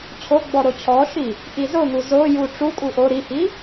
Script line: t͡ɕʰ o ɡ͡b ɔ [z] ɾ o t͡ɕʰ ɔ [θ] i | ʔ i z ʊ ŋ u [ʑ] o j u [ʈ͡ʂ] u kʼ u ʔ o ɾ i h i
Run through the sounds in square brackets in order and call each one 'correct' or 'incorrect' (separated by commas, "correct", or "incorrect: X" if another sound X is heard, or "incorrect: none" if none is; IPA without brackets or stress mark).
incorrect: none, incorrect: ʃ, incorrect: z, correct